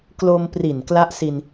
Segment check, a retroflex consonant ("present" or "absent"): absent